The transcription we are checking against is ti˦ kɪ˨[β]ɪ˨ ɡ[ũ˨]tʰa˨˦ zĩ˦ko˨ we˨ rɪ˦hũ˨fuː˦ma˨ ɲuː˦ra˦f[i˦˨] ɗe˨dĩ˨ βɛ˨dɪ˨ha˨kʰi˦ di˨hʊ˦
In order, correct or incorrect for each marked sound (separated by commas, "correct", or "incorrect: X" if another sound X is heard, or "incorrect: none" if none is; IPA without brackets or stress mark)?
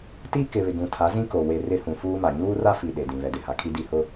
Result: correct, correct, incorrect: i˨